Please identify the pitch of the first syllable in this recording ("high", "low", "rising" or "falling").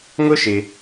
high